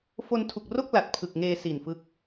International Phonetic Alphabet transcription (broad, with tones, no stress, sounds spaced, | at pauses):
f o˧ n tʰ u˨˩ k̚ r o˥˩ k̚ l a˨˩ t̚ pʰ ɯ˨˩ k̚ ŋ eː˧ s i˨˩ n f ɯ˦˥ k̚